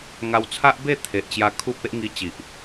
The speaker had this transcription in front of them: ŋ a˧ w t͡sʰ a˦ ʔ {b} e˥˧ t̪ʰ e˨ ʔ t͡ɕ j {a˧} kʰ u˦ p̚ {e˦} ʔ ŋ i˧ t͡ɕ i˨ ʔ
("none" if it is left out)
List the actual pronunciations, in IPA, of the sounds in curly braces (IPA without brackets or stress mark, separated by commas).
b, a˧, e˦